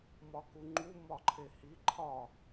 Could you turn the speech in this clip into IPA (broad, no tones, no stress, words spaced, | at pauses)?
mɒkuŋ͡ǃu mɒǃʰehi ǃʰɒ